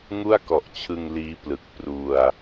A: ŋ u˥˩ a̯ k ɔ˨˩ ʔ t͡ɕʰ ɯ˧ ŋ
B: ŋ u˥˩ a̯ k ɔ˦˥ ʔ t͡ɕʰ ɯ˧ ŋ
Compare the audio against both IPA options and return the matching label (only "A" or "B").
A